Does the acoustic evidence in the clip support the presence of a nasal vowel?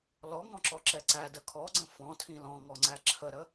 yes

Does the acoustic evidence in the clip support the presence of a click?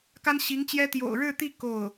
no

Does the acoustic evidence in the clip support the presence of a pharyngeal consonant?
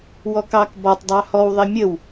no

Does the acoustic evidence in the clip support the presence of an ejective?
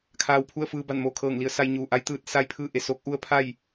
no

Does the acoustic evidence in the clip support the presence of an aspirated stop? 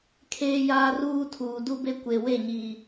yes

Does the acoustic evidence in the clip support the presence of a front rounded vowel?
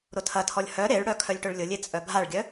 yes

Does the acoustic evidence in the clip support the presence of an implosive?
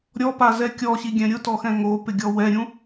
no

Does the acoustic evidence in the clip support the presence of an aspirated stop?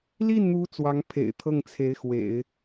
yes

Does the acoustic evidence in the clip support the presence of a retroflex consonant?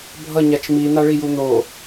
yes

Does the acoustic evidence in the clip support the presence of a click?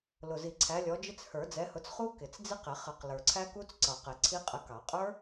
yes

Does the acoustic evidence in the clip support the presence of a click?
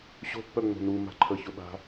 yes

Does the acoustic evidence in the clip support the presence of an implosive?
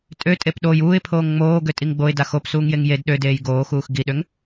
yes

